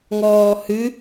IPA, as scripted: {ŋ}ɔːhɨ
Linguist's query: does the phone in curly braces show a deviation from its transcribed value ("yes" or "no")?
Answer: no